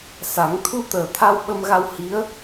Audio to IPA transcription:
sa˨˩˦ŋ t̪ʰu˧t̪əː˨˩ t̪ʰa˧wɓə˧mɣa˧w hi˧˥ə̯

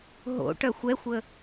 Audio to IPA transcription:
ɦo̰ʈœxʷ ɛxʷə

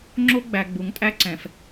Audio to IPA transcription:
ŋ͡ǁo˦ɡ͡bæ˨ ɡ͡bu˨˦ŋtʼæ˦ǀɛ̃˨f

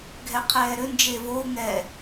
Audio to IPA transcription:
ɡʱɛqʰɛːɾʏ nd͡ʒevou̯ ŋɛ

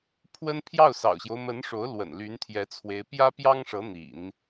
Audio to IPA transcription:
pʰwə˥n pʰjɑ˥˩ʊ̯sɑ̰˨˩ʊ̯ɕjo˦ʊ̯mə˧˥n ʂo˧˥ʊ̯lwə̰˨˩n ly˧˥nt̪ʰjɛ˧˥t͡sʰwe˧˥ɪ̯ pjä˥pjɑ˥ŋʂɤ˧˥ n̪ḭ˨˩˦n

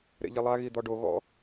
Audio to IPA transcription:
ɾḛʎilˠa ɣid̪ɔɖo ɣɔ̰

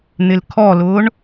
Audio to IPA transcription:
n̪ɪlkʰɔlʊːɳ

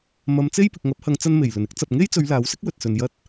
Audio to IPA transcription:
mɐ˨˧mt͡se˥jpɪ˨k̚ ŋɐ˨˥p̚hɐ˨˧ŋt͡sɐ˧n me˨˩jlɵ˨˩nɪ˥k̚ t͡sɐ˨p̚ŋe˥jt͡sɵ˨˧ɥ laː˨˥wsɪ˥k̚ wɵ˨t̚sɵ˨n jɐ˧t̚

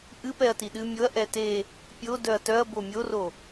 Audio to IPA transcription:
ʔɨ pɛɐ̯tiɗɨ mʲoɐ̯ ʔɛte | pʲo dœɐ̯tœɐ̯ bomʲoro

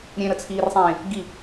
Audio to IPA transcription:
ɾʲẽɾət͡sʰiːrsˤẽː | ɡi

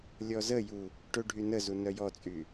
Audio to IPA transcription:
lʲɔzəju | ʈøɖʱynəzu nœjɔt͡sʼy

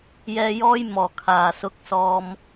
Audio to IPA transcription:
jɛː˧jɔː˥j mɔː˨˩kʰaː˨˩sʊ˨˥k̚ sɔː˨m

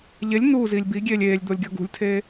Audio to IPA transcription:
ʎelʲ nuːziːlʲ biɡʲeːlʲ eːlʲd̪olʲɡʲɒ ɡṳlʲtʰeː

